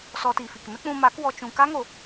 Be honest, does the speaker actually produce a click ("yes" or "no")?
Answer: no